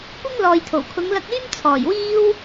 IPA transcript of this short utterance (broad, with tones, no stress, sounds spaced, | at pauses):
kʷ ɪ˥ ŋ l ɔː˨ j t̪ʰ o˨˩ w kʰ ʊ˨˧ ŋ l ɐ˧ k̚ yː˥ m t͡sʰ ɔː˨˩ j w iː˥ w